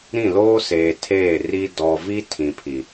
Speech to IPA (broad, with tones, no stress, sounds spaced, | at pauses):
ɾ ĩ˦˨ l oː˦ s eː˨ tʰ eː˦˨ r i˦ d ɔ˨ v i˦ tʰ ĩ˨ pʰ i˨